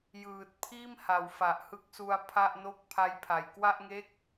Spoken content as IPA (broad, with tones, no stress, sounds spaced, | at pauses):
j ɯː˨˩ t̚ pʰ iː˥˩ m h a˩˦ w f a˨˩ ʔ h ɯ˦˥ k̚ s u˧ a̯ pʰ a˥˩ ʔ n o˥˩ k̚ pʰ a˦˥ j pʰ a˨˩ j k w a˥˩ ʔ ŋ e˥˩ k̚